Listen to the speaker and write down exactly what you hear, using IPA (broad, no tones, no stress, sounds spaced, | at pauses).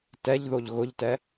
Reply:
t ɛ ʎ ð o ʎ ɣ ʊ ʎ t ɛ